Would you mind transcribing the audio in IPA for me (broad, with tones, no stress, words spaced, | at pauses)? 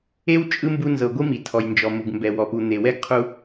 e˥w t͡ʃʼɯ˥mbu˦ nzɤ˨ɡʷɯ˥mi˩ tʰɔ˩jnd͡ʒɔ˩ mu˩ɡmbɛ˨ wɔ˩pu˨n̪e˩ wɛ˥ɡqʰu˦